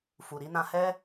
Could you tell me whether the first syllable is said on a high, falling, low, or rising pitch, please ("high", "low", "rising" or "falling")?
low